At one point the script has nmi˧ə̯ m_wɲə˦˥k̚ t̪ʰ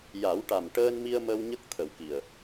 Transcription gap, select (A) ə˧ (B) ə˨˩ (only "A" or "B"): A